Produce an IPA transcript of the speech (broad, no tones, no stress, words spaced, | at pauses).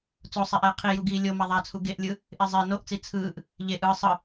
t͡sosˤeʔɛː qʰijuɡiː lʲo maðˤat͡sʰu ɡeʔlʲɯ | ʔezˤe noʔt͡si t͡sʰɯːʔ | ʎe ʔɯː sˤɯ